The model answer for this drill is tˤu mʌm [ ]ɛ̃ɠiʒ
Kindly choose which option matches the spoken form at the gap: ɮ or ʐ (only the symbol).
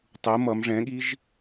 ʐ